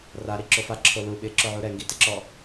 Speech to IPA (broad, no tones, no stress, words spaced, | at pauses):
raɾiǁo faǁʰo lu ɓɪǁʊʕu ɾɛŋɡitɪǁɔ